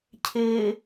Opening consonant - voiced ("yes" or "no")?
no